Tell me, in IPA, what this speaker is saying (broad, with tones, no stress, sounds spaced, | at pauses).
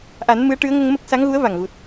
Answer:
ʔ a˨˩˦ n m ɨ˧˥ ə̯ ʈ ɨ˧˥ ə̯ ŋ ə˧ ŋ m ə˦˥ k̚ s a˧˥ ŋ ɣ u˧˥ ə̯ v a˨˩ ŋ ɣ u˨˩ t̚